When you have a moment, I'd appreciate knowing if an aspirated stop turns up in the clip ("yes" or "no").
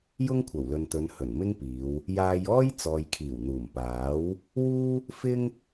yes